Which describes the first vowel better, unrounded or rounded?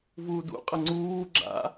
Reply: rounded